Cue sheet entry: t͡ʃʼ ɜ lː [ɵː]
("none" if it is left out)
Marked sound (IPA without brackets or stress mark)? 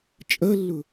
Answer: ɵ